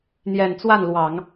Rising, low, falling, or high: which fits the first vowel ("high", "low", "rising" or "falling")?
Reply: low